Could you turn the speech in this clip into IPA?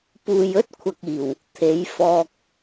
p uː˨ j ɵ˥ t̚ kʷʰ ɐ˨ k̚ iː˨˩ w | t̪ʰ e˨˥ j f ɔː˧ k̚

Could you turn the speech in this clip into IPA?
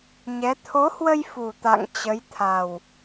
ɲ ɛ˨˦ t̪ʰ o˨˦ h w ə˧ j f u˨˩ t̪ a̰˧˨ ŋ t͡ɕ ə˨˦ j t̪ʰ a˨˩ w

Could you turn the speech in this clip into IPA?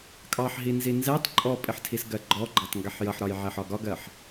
kʼ ɑ ħ ɦ i n z i n z ɛ tˤ ǃʼ ɔ pʼ ɪ ħ tʰ i s ɡ ɜ ɡ͡ǃ ɔ ɡ͡ǃ ɑ tˤ ŋ ɡ ɛ ħ j ʌ ħ ɾ ɒ j ʕ ɛ ħ ɒ ɡ ɒ ɡ ɜ ħ

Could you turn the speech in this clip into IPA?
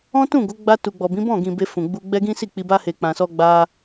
ɔ̃˦ t ũ˦˨ ɡ o˨˦ ɡ͡b a˧ t u˨ ɡ͡b ɔ˨ b ĩ˨˦ b ɔ̃˦˨ ɡ ĩ˨ b e˧ f ũ˨ ɡ͡b u˧ ɡ͡b ɛ˦ ɡ ĩ˦ s i˦˨ k͡p i˧ b a˧ h e˨ k͡p ã˨ s ɔ˧ ɡ͡b a˧

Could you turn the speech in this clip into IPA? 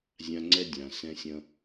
zʲ ã˦ ŋ͡ǀ ɛ˦ dʲ ã˨ s ɛ̃˦ sʲ ɐ̃˦

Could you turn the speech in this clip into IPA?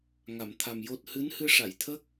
ŋ a˨˩˨ m t̪ʰ a˨˩ m j o˦˥ t̚ h ɨ˧˥ n h ɨ˧ ʂ a˨˩˨ j t̪ʰ ə˦˥ k̚

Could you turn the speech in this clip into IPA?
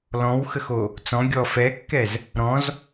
l ɔ̃ w x ə x o | t͡s ɔ̃ ɡʲ ɔ f ɛ kː ɛ z | ɾ ɔ̃ z

